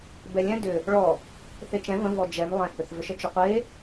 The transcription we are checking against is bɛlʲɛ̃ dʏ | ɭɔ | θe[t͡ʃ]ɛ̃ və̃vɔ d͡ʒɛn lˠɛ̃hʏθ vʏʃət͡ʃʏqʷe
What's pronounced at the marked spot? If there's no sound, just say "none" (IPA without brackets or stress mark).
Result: t͡ʃ